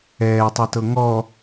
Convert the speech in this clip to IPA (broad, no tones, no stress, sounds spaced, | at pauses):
ɛː tˤ ɛ t ɤ ŋ ɔ